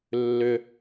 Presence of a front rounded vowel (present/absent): present